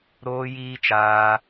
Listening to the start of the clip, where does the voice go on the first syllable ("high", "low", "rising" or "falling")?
high